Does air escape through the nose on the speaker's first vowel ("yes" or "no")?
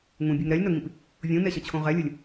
yes